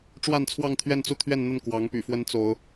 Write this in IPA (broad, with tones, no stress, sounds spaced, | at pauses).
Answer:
ʈ͡ʂ w a˥˧ n t͡sʰ w ɑ˥˧ ŋ t̪ʰ ɥ ɛ˥˧ n t͡s u˥˧ t̪ʰ ɥ ɛ˥˧ n n̪ ə˥˩ n k w ɑ˧˥ ŋ p y̰˨˩ f w ə˧˥ n t͡s o˧˥ ʊ̯